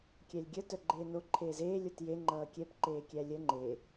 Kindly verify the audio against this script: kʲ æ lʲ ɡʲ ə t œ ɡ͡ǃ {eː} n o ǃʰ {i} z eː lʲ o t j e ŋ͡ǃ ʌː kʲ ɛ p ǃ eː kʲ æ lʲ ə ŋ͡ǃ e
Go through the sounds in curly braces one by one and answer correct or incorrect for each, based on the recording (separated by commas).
correct, incorrect